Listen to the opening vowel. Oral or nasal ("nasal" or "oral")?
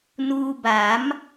oral